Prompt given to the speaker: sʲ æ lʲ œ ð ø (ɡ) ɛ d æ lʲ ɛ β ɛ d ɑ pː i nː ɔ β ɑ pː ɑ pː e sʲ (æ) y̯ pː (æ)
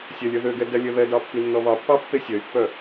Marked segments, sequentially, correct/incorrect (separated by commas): correct, incorrect, incorrect